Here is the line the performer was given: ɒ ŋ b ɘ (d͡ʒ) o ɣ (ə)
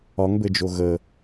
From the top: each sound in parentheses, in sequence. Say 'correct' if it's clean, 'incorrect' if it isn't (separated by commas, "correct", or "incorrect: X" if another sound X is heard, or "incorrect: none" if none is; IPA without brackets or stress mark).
correct, correct